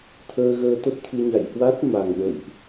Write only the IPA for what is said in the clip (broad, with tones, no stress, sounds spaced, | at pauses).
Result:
t̪ʰ əː˧ ɣ əː˧ t̪ ə˦˥ p̚ t̪ʰ ɨ˧ ɲ a̰˧˨ j h w a˦˥ t̚ m a˨˩ ŋ ɗ ə̰˧˨ j ʔ